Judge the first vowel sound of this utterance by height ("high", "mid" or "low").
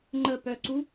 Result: mid